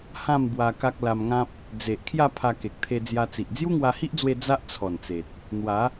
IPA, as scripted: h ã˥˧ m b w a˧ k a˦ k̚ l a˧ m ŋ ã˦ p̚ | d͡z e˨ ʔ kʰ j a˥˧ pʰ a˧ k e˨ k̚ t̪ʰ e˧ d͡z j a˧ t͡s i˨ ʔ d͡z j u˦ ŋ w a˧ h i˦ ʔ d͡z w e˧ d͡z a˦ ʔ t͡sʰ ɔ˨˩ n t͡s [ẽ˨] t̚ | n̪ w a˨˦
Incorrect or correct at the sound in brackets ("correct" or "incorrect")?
incorrect